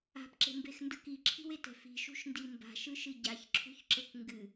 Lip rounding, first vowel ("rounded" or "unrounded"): unrounded